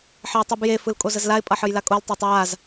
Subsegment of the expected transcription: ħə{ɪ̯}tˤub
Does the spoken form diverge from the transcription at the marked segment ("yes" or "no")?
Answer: no